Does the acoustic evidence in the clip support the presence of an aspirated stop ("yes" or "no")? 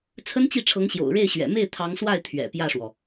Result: yes